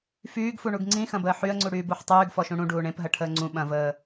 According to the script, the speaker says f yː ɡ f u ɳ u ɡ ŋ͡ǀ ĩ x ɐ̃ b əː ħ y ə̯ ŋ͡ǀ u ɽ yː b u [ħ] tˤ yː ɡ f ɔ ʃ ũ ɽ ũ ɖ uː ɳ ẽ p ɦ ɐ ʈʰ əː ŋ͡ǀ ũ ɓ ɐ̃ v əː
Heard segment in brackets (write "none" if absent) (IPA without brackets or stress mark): ħ